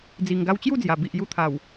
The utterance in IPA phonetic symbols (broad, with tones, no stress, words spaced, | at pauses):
d͡zi˨˩ŋɡa˧w t͡ɕju˥˧d͡zja˨˩ bi˨ʔju˧t̪ʰa˨˩w